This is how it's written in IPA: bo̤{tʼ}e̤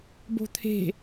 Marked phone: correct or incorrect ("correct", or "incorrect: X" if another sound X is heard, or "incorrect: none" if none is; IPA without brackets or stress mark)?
incorrect: t̪ʰ